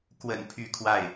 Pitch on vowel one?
low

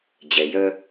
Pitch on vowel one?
low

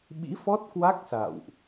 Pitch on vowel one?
rising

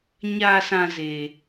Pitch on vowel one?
low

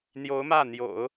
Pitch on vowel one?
rising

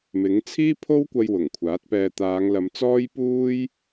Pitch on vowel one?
rising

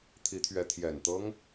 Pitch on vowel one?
rising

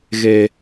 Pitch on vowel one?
high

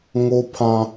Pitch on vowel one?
high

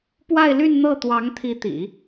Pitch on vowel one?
falling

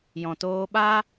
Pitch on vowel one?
low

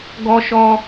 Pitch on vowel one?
high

